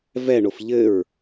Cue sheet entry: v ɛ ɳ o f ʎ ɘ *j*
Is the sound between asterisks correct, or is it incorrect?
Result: incorrect